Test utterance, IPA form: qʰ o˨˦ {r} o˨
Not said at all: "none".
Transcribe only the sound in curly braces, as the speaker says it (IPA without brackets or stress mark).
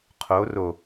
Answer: r